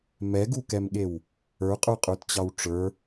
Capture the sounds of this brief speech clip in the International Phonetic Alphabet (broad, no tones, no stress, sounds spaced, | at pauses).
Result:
m ɛ ɡ u k ɛ m ɠ e w | ə˞ qʼ ə˞ qʼ ə˞ t t͡ɕ ɑ w ʈ͡ʂ ə˞